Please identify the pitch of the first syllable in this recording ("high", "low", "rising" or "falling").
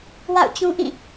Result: falling